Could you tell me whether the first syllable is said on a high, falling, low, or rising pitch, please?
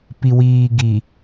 low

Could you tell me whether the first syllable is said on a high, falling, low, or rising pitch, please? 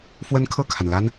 high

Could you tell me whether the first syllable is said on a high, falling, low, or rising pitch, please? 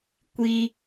high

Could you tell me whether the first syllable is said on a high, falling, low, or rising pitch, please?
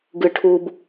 low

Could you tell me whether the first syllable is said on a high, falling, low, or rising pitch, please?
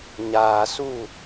low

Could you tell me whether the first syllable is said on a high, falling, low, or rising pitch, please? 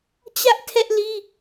high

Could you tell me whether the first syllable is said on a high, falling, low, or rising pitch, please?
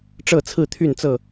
falling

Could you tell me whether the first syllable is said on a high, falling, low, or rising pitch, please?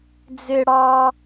high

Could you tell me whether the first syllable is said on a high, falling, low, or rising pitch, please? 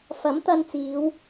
rising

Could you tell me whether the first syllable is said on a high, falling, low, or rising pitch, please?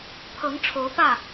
rising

